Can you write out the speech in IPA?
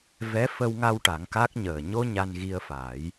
v ɛ˧˥ f ə˧ w ŋ a˧ w ʈ a˨˩˦ ŋ k a˦˥ k̚ ɲ əː˨˩ ɲ o˧ ɲ a˧ n ɣ i˧ ə̯ f a˨˩˦ j

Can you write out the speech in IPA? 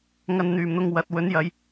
ŋ ɐ˧ n n̪ yː˨˩ m n̪ ʊ˧ ŋ w ɐ˨ t̚ w ɵ˨˥ n j ɐ˨˧ j

